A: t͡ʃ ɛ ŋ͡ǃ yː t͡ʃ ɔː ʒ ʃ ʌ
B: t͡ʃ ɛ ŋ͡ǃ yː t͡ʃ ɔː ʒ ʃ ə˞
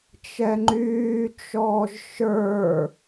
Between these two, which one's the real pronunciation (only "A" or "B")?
B